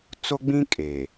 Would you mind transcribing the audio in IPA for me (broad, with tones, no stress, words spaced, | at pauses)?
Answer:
t͡so˦ɡ͡bĩ˦ kʼe˨